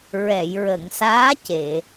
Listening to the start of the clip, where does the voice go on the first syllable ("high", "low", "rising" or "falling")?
low